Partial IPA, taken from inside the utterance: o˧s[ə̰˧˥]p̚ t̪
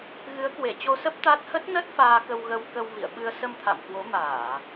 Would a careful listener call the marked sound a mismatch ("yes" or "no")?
yes